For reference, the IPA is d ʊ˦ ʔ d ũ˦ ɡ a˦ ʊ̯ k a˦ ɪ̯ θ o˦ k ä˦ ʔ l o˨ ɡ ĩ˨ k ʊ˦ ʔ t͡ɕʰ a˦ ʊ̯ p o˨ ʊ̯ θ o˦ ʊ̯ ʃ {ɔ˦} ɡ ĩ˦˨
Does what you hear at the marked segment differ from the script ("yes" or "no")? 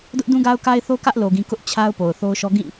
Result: no